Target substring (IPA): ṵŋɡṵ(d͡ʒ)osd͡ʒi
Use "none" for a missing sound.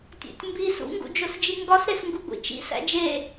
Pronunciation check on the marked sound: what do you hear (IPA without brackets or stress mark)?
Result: d͡ʒ